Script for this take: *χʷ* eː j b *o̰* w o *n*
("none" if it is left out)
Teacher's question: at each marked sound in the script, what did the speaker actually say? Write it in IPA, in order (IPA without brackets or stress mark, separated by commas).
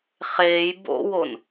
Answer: χ, o̰, n